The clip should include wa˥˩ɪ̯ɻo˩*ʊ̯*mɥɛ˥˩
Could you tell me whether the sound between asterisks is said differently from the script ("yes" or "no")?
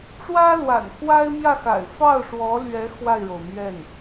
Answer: no